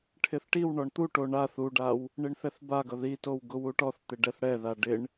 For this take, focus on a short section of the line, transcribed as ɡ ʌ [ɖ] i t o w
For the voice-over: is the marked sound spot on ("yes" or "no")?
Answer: no